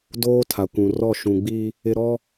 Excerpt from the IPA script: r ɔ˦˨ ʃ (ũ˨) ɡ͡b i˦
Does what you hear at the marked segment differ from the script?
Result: no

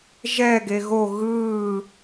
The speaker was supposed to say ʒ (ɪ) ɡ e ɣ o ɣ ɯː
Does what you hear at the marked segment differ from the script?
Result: yes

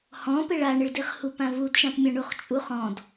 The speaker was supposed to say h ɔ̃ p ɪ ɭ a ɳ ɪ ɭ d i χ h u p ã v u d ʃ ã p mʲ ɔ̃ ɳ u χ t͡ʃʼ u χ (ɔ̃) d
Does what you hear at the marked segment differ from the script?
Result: no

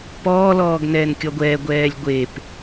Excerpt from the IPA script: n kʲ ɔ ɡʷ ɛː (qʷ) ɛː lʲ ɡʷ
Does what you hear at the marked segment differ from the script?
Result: yes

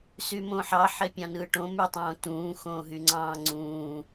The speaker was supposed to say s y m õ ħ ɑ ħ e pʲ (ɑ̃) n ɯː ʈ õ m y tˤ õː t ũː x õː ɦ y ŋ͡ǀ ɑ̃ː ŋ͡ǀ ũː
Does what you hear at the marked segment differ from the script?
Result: no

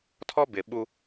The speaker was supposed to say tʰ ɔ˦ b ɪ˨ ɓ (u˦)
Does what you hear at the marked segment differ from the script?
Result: no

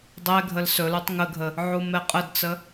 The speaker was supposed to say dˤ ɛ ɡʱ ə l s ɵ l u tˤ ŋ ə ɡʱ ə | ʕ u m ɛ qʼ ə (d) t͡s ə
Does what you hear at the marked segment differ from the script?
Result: no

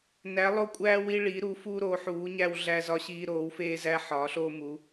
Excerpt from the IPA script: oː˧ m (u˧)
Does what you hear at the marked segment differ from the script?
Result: yes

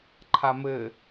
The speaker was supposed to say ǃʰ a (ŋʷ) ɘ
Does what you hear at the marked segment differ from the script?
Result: yes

